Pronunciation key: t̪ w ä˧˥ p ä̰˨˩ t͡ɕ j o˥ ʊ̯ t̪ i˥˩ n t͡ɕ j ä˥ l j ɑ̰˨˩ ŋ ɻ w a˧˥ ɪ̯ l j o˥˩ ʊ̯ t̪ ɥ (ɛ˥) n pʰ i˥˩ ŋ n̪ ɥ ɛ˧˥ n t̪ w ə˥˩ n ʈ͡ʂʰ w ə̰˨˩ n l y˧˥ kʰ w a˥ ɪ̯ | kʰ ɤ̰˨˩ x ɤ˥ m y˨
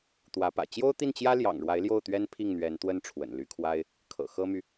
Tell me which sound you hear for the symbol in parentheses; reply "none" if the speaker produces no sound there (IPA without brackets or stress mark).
ɛ˥